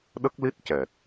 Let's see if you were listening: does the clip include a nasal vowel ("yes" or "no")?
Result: no